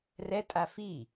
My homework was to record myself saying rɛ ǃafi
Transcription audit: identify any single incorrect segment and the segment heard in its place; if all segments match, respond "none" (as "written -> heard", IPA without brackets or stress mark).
ǃ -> tʼ